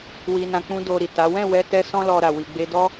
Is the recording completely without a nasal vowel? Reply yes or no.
no